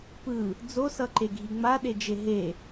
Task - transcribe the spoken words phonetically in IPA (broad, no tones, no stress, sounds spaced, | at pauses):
p ɯ | d͡z o s ʌ ǃ e ɡʱ i ŋ͡m a ɗ e d͡ʒ e ɦ e